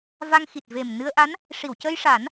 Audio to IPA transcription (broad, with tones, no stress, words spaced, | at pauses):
va˧ŋxi˨˩t̚ve˨˩m nɨ˧ə̯ʔa˧˥n | ʂi˨˩˨wcə˧jʂa˨˩˦n